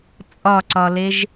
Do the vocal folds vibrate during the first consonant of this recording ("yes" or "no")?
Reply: no